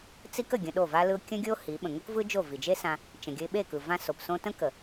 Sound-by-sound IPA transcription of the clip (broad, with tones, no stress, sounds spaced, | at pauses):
t͡s i˦ k ə˨ ɡʲ ə̃˧ ɗ o˦˨ v a˦ l ɯ˦ ʊ̯ kʲ ə̃˦ ɡʲ o˦ h i˨˦ ɓ ə̃˨ ŋ o˦ k v ɯ˦ d͡ʒ o˦˨ v i˨ d͡ʒ e˦ s ã˧ | t͡ʃ ə̃˨ ɡʲ ə˧ ɪ̯ ɓ e˦˨ k ɯ˨ v ã˦ s o˨ p s õ˦ t ə̃˦ k ə˨